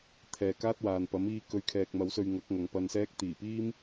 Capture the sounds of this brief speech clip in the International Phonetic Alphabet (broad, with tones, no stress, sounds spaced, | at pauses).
t̪ʰ ɛː˨ k aː˥ t̚ w aː˨ n p ɐ˨˥ m iː˧ k ɵ˨˧ ɥ kʰ ɛː˨ k̚ m ɐ˨˧ w s ɵ˧ ɥ ŋ ɐ˨˥ k̚ ŋ ɐ˨ ŋ p ɐ˧ n s ɛː˥ k̚ t̪ iː˨˩ p iː˥ m